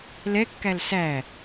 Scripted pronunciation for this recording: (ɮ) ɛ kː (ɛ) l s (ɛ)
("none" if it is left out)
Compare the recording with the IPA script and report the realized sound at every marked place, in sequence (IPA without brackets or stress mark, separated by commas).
l, æ, æ